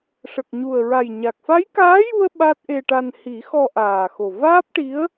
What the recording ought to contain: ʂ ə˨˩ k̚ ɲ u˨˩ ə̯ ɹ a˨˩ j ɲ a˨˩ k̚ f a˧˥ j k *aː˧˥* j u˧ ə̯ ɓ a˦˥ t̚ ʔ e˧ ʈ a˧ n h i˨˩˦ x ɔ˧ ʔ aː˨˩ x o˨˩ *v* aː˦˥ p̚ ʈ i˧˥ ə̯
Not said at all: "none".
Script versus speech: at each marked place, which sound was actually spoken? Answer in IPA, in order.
aː˧˥, v

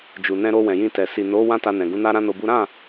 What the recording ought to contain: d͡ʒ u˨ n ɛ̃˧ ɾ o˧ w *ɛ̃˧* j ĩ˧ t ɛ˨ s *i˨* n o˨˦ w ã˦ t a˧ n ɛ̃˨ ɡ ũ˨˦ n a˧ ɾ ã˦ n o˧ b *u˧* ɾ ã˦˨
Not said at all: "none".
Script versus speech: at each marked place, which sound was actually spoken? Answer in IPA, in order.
ɛ̃˨, i˨, u˦

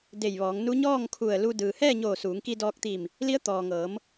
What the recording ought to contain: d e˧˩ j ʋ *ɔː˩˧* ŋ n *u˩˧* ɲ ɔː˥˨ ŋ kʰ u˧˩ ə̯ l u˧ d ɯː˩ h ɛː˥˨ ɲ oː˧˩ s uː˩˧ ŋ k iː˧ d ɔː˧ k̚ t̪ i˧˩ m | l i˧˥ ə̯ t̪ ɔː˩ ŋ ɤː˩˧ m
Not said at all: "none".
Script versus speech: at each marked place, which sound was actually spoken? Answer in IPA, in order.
ɔː˩˧, u˧˥

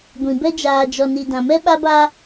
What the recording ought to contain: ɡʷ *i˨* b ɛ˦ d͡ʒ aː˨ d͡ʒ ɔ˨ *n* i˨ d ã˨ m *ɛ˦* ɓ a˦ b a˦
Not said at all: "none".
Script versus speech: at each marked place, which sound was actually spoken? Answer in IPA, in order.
ĩ˨, n, ɛ˦

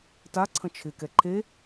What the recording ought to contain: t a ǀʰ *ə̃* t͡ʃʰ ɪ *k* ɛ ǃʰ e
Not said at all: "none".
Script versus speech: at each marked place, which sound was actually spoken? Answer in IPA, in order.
ə̃, k

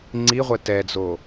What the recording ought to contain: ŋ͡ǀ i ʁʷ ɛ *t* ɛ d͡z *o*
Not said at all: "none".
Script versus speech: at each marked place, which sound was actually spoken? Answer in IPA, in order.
t, o

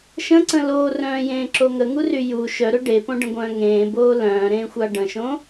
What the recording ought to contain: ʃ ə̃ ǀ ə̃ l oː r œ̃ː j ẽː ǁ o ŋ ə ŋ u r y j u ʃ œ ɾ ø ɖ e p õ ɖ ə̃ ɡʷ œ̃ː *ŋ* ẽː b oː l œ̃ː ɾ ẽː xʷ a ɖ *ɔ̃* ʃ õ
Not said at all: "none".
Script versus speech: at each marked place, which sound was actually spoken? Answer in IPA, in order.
ŋ, ə̃

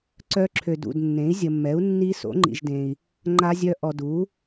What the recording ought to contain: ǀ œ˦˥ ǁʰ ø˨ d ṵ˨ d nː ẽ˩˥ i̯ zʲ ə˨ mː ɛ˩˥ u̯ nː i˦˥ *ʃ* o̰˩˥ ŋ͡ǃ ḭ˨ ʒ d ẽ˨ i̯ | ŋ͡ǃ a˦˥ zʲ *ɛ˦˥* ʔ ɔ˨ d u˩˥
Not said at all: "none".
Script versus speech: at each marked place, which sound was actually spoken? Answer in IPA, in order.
s, œ˦˥

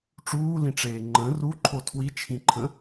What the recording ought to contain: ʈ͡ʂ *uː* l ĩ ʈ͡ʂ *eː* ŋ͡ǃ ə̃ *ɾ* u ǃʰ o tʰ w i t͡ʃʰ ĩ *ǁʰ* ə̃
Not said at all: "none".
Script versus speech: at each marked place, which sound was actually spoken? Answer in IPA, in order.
uː, eː, r, ǃʰ

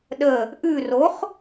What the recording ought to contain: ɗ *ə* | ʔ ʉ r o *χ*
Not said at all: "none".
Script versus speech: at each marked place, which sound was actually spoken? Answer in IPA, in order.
ə, χ

